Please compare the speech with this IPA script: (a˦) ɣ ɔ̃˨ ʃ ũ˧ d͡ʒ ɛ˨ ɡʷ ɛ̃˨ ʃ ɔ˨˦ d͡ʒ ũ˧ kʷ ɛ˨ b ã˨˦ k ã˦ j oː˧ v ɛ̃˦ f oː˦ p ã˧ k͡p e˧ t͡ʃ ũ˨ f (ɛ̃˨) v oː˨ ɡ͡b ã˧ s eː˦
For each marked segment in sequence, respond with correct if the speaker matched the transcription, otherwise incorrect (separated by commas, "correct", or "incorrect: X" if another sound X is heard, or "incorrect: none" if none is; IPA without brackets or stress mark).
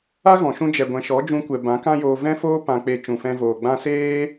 correct, incorrect: ɛ̃˧